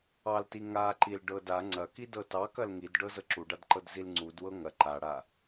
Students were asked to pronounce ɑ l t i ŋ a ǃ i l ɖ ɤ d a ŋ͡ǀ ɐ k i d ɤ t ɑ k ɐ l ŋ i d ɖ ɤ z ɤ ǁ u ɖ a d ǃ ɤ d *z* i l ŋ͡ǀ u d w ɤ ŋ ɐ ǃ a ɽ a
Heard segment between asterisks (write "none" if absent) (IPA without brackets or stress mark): z